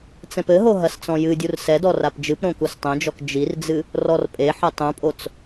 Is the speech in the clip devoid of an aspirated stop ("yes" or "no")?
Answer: yes